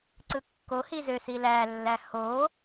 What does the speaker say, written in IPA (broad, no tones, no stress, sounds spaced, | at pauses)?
ǀ ɯ kː o h i z ø s i l æ lː æ h o